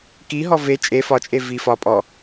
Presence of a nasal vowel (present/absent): absent